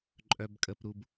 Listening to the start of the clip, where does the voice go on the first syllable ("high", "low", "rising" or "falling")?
low